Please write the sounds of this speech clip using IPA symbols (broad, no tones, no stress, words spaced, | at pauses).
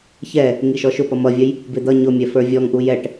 çɛ | ŋiʃɔʃʊ pʌmʌvʲəj | bɪd̪ʌ ɲʊmʲɛ fə˞vʲɔŋ ʔujɛʈ